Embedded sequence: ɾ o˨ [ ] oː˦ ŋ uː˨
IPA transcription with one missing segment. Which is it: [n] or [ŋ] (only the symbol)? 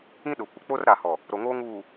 ŋ